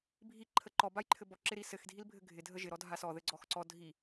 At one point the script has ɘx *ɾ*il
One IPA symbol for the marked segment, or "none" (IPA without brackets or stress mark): dʱ